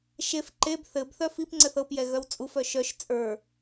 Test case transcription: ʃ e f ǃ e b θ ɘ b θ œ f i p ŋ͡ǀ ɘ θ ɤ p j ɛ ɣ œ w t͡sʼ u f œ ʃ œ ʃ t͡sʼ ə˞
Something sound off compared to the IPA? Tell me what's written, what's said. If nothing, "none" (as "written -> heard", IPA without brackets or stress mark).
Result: none